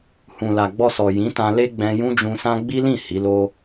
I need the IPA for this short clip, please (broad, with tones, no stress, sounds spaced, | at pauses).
h ũ˨ l a˨ ɡ͡b ɔ˧ s ɔ˨ j ĩ˨˦ t ã˧ l e˦ ɡ͡b ɛ̃˧ j ũ˦ d͡ʒ ũ˧ s ã˦ ɡ͡b i˦ l ĩ˦˨ h i˨˦ l o˦